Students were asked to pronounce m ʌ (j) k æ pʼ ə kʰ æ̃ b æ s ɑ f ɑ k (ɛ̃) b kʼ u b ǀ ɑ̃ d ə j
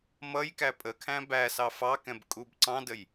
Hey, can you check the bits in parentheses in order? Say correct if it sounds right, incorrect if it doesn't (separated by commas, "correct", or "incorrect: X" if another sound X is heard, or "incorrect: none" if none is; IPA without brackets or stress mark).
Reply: correct, correct